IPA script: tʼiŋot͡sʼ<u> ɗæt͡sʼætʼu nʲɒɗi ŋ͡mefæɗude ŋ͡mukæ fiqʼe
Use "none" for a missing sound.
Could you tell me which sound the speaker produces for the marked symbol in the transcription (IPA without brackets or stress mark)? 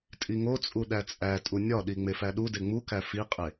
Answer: u